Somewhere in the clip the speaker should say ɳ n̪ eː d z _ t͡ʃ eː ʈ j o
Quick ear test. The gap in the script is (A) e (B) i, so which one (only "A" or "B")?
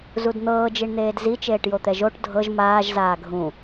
B